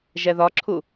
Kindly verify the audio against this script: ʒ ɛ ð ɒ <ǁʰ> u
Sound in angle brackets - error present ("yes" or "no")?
no